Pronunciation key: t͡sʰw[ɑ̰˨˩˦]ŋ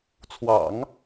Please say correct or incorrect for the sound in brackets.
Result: correct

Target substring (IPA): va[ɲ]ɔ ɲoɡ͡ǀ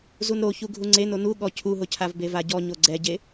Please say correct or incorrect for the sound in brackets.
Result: incorrect: ɟ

